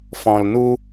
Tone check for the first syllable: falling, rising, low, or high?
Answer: low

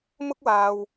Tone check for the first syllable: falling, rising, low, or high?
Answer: high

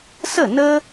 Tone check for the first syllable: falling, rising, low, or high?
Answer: falling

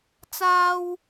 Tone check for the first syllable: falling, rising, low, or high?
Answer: low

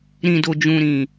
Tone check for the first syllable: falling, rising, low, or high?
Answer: low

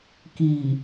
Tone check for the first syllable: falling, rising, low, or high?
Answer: low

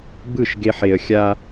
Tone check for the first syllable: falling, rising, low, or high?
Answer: falling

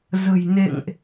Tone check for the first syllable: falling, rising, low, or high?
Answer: low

